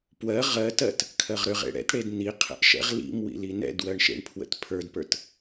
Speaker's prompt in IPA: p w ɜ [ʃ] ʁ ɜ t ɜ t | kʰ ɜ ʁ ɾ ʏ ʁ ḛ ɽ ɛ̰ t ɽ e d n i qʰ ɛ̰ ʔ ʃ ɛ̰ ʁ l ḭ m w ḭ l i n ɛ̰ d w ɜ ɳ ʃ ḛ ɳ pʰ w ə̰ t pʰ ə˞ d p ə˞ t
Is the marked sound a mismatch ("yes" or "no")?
yes